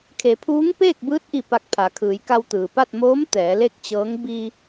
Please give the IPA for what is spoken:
kʰ e˩˧ pʰ uː˧˥ ŋ p eː˥˨ k̚ b ɯː˧˥ t̚ ʔ i˧˩ p a˧ k̚ pʰ a˩˧ kʰ ɯː˩˧ j k a˧ w t̪ ɯː˩ p a˥˨ t̚ m oː˧˥ m t̪ ɛː˩˧ l e˥˨ k̚ t͡ɕ ɤː˧˥ ŋ b i˧

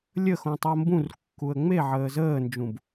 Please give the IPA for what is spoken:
lʲ ə x õ tˤ o m b ũ r kː u ə̯ ŋ͡m e ʕ əː z əː n d͡ʒ ũ b

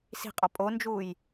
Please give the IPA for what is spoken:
s i̤ qʼ ɒ pʼ o n d͡ʒ uː j

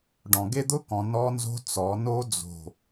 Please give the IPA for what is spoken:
ɖ ɔ̃˨ ɡ e˦ d̪ ʊ˦ k ɔ̃˨ n ɔ˦ n z o̤˦ t͡s ɔ˨˦ n o˦ d͡z o̤˨

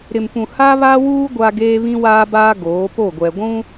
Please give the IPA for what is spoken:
ɾ ɪ˨ m p ũ˨ h a˦ β a˦ w uː˦ ɡʷ a˦ ɡ eː˦ β ĩ˦ w aː˦ b aː˦ ɡ oː˨˦ p o˦˨ ɡʷ ɛ˨ ɡʷ ũ˦

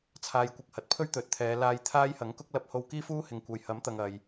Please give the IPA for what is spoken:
t͡sʰ aː˨ j kʷ ɪ˨ k̚ h ɐ˨ t̚ pʰ ɵ˥ ɥ t̪ ɵ˨˥ t̚ t̪ʰ ɛː˨˧ l aː˧ j t̪ʰ aː˥ j h ɐ˨˥ ŋ k ʊ˥ k̚ l ɐ˧ p̚ h o˧ w k iː˥ f uː˥ h ɪ˨ ŋ kʷ ɐ˨ j h ɐ˨˥ m t̪ ɐ˨ ŋ ɐ˨ j

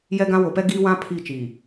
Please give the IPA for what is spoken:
j ɛ˦ ɡ ã˦ w o˨ p ɛ˦ ɡ iː˦ w ã˦ pʰ i˦˨ t͡ʃ iː˨

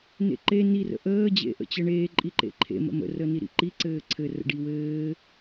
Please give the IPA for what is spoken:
n ḛ ǃ e n i r ə̰ ʔ əː d͡ʑ ḛ ʔ ə̰ t͡ɕ ɘ ɳ eː ǃʼ i ǃ ḛ ǃʰ ḛ m ə̰ m ə̰ r ə n i ɾ ḭ ǃ i ǀ ɘː ǀʰ ɘ r ə̰ ɖ i w ɘː

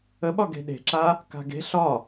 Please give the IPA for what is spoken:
ə ɓ ɒ ɡ e̤ ɗ e̤ ǁ a | k a̤ ɡ e̤ ɬ ɒ

